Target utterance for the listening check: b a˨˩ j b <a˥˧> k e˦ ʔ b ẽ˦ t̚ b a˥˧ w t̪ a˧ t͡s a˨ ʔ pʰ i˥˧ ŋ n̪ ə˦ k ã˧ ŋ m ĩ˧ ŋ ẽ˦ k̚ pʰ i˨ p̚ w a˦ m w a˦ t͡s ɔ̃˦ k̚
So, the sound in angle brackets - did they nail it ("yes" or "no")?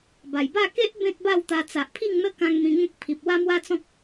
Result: yes